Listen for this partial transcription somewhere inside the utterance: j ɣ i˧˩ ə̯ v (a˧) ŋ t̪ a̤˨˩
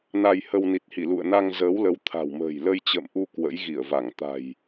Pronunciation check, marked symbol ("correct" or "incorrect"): incorrect